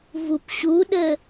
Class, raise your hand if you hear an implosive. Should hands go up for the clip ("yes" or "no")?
yes